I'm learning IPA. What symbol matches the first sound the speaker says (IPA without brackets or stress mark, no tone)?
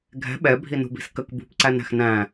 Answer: ɡʱ